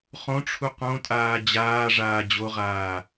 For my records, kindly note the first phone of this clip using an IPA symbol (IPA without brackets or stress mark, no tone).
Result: χ